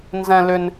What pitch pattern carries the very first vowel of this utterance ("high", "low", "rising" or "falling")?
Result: high